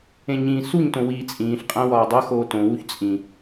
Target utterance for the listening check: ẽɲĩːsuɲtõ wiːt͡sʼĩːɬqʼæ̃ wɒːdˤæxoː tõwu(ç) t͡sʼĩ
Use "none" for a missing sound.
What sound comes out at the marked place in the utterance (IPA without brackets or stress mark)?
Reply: ç